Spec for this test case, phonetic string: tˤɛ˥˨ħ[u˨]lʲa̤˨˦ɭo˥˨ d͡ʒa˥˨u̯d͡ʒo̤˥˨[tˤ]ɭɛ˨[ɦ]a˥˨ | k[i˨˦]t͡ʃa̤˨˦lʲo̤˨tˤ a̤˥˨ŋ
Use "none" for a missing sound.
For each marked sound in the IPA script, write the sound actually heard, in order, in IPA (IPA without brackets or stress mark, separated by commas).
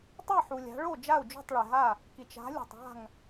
u˨, tˤ, ɦ, i˨